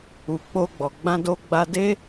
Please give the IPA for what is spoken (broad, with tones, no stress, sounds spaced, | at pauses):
u˨ k͡p o˧ ɡ͡b ɔ˨ ɡ͡b ã˧ d o˧ ɡ͡b a˧ d e˦